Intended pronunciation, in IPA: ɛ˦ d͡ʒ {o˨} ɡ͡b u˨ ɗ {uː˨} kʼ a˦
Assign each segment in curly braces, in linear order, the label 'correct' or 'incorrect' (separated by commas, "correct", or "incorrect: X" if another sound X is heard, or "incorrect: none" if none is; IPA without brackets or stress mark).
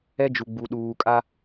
incorrect: u˨, correct